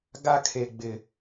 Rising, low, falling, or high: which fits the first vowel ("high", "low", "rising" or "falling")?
high